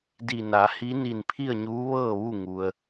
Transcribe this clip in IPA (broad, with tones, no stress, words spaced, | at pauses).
di˧˩na˩˧ hi˧˥ni˧˩n pʰi˥˨ə̯ɲuː˧˥ ʋɤː˥˨ʋu˥˨ŋu˩ə̯